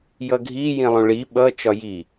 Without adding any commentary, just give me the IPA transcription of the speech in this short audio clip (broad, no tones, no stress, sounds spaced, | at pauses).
j ʌ ɡʱ i j ĩ lˠ ũ ɭ i ɓ ʌ t͡ʃ ɒ j i